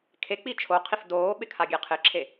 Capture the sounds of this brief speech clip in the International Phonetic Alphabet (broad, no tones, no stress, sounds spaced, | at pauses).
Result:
kʰ e k͡p i t͡ʃʰ o qʰ i f d oː ɓ ɪ kʰ a ɡʲ e qʰ ɪ ǁʰ e